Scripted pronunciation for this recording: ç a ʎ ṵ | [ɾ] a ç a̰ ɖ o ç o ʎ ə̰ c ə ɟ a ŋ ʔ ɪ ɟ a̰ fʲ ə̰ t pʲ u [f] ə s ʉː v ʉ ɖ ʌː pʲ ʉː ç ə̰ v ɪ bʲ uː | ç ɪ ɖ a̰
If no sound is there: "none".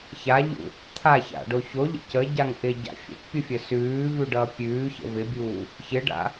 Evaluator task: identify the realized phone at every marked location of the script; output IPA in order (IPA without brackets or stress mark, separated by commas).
t̪ʰ, fʲ